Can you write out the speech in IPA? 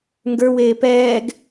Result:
ŋɡə˞weː pɛːɡ

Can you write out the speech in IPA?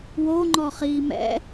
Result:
woŋ͡ǃɔ χiːmɛ̰

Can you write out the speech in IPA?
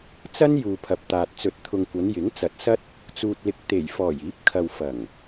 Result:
t͡sɐ˥n juː˨pʰɐ˨p̚t̪aː˨t̚ t͡sɵ˨˥t̚t̪ʰʊ˨ŋkʷɐ˨˧n jɪ˨˥ŋ t͡sɐ˨˥t̚sɐ˥t̚ | t͡suː˨t̚lɪ˨k̚ t̪e˨˩jfɔː˨˩j iː˨˥p̚kʰɐ˨w fɐ˨˩ŋ

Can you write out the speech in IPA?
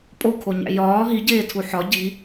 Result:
pʼokʰoɲæ̰ jɒː ɦiɟeːtʰu ħɒ ɟi

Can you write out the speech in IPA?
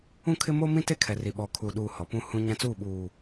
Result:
ũ˦˨kʰɪ˦ mo˦mĩ˦te˦ kʰɛ˨ri˨ ɓɔ˨kʰu˨ɗuː˨ hɔ˨pũ˦ hũ˦ɲã˦t͡suː˦˨ ɓuː˨

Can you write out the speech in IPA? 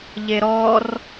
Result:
ʎeɾɔr

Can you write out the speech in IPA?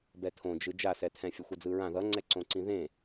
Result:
bɛtʰõd͡ʒɯ d͡ʒasɛtʰɛ̃ fʲʌxʷʌd͡zɯɹã ðʌŋ͡ǀɛǀõǀĩ ðẽ

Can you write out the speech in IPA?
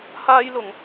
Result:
haː˥jlʊ˧ŋ

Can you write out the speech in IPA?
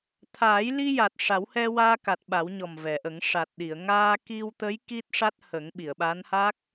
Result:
t̪ʰaː˨˩˦jli˧ja˨˩t̚ ʂa˨˩˦whɛ˧waː˧ka˨˩t̚ ɓa˨˩˦wɲɔ˨˩mvɛ˨˩˨ʔə˨˩˦ŋ ʂa˨˩t̚ɗi˨˩˨ə̯ ŋaː˧ki˧wt̪ə˧˥j ki˦˥t̚ʂa˦˥t̚hə˨˩˦ŋ ɓi˨˩˨ə̯ɓa˧˥nha˦˥k̚

